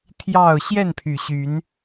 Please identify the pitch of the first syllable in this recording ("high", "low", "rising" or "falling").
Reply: falling